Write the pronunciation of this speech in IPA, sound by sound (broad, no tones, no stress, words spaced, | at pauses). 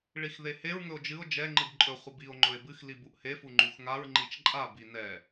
ɭixðeheɹ ŋɵo̯d͡ʒɨo̯ d͡ʒɛ ŋ͡ǃɨbǃʼɵ χʷəbio̯ ŋ͡ǃɵe̯bɨx libuʔhe fuŋ͡ǃuxŋaɹ ŋ͡ǃit͡ʃǃʼa binɛ